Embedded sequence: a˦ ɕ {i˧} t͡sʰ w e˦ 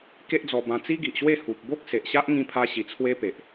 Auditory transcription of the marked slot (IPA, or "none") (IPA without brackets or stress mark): i˧